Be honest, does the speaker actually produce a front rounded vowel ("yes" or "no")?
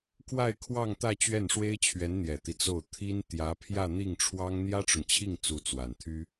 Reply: yes